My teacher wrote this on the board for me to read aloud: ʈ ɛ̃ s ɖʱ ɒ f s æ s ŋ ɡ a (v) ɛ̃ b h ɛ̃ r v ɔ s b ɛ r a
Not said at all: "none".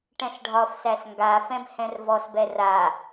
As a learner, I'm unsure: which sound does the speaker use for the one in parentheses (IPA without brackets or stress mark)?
f